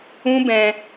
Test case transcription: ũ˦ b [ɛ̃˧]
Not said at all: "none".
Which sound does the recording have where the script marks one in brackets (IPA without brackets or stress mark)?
ɛ̃˧